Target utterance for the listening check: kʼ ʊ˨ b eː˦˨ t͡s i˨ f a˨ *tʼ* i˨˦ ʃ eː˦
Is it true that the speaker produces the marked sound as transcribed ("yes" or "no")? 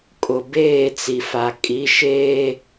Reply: no